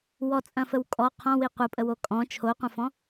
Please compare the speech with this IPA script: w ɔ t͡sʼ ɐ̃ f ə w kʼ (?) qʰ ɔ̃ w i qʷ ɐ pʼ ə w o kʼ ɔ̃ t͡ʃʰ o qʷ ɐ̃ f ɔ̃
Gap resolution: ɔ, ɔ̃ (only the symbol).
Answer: ɔ